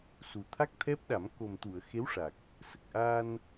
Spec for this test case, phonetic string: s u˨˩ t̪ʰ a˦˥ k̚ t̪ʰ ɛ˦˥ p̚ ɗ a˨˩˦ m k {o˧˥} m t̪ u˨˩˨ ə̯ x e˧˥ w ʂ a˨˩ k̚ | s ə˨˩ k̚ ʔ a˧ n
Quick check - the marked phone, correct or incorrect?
incorrect